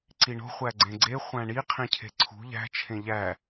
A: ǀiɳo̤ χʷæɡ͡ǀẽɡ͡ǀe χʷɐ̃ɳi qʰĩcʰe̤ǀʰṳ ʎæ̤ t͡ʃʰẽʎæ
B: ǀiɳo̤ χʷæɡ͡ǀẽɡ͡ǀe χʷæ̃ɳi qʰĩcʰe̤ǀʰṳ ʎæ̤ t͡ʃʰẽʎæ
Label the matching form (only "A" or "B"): B